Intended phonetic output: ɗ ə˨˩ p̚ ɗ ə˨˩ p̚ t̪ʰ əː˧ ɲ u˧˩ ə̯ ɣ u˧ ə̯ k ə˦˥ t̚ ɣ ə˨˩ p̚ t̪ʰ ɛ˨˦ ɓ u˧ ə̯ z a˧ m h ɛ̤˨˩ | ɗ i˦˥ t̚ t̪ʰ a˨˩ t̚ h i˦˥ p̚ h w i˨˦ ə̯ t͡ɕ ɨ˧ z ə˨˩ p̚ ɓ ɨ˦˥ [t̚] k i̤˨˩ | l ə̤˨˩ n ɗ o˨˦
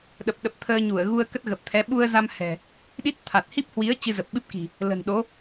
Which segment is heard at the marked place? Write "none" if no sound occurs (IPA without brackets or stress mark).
p̚